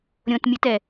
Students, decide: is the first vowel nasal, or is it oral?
nasal